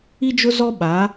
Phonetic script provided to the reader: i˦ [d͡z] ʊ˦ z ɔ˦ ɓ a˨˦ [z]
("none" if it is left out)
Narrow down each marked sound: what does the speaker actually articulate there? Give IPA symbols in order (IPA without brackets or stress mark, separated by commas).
d͡ʒ, none